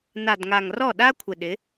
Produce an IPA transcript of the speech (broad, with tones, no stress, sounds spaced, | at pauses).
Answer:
n a˨ d ŋ a˨ ŋ r ɔ˦˨ ɗ a˦ kʷʰ ɪ˨ ɗ ɪ˨˦